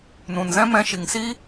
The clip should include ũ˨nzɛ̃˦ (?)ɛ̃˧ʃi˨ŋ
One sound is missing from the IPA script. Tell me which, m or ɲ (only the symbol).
m